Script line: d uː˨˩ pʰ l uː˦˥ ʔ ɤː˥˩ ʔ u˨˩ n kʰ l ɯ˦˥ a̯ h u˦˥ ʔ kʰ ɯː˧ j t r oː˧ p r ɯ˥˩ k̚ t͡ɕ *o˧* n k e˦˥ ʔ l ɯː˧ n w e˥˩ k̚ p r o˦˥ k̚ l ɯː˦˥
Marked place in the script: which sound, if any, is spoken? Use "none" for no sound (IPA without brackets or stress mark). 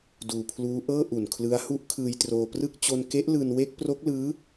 o˧